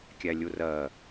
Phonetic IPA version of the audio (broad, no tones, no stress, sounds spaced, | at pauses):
kʲ æ lʲ u r ɜ